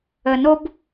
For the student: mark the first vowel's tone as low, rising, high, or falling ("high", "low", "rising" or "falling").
low